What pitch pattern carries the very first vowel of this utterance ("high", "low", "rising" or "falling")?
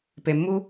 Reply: low